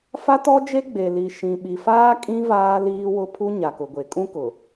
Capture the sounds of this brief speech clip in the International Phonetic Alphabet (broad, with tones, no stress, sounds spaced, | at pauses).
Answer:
f a˦ t ɔ˦ d͡ʒ e˦ ɡ͡b e˨ l i˨ ʃ ĩ˨ ɓ i˨ f aː˦ kʼ ĩ˦ v aː˦ l iː˦ w ʊ˦ pʰ u˦ ɲ a˨ k ʊ˨ ɡʷ e˨ kʼ ũ˦ k ʊ˨